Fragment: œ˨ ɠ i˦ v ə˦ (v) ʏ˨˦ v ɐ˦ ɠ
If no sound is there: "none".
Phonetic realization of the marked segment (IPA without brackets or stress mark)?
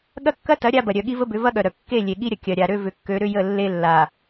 b